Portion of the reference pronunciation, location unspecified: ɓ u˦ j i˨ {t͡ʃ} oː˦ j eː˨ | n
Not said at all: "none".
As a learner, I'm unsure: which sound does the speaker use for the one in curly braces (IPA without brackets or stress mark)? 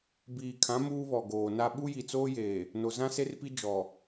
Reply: t͡s